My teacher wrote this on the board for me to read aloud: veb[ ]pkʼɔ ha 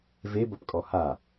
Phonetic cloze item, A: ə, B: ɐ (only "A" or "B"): B